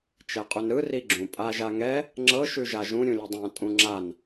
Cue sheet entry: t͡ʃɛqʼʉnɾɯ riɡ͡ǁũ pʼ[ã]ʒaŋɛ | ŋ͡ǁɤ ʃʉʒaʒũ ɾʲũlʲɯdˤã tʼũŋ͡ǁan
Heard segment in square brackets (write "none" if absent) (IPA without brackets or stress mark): a